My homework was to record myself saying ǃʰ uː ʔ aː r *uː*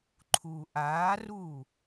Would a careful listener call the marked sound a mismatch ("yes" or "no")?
no